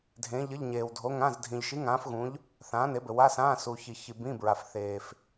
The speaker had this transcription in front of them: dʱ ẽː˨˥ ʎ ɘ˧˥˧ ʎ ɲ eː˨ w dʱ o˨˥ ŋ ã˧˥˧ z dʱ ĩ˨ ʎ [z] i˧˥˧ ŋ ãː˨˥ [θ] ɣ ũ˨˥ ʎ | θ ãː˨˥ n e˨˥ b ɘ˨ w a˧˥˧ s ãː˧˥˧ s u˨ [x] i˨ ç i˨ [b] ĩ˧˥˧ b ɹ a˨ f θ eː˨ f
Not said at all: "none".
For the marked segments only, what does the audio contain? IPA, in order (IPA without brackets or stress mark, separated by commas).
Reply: ʃ, f, ç, b